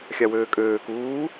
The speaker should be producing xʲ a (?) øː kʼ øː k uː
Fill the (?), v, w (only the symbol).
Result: w